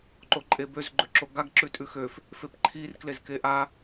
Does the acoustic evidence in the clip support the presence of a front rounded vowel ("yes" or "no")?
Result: yes